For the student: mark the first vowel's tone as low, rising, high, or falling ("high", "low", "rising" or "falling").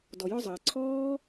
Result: low